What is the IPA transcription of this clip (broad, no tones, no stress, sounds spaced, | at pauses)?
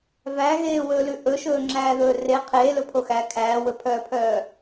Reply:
v æ ɣ eː w ɵː l ʉ ʔ ɵ ʃ ɵː ŋ͡ǁ æː ð ɵː r e qʰ eː l ɵ pʰ o x æ kʰ æː w ɵ pʰ œː pʰ œː